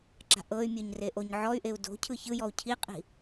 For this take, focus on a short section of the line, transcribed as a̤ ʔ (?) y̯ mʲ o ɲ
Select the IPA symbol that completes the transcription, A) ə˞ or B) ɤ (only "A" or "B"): B